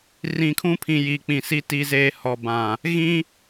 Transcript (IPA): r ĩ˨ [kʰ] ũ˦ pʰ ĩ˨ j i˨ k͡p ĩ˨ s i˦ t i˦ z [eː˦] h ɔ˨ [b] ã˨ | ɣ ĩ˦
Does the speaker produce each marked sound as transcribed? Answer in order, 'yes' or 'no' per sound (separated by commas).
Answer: yes, yes, yes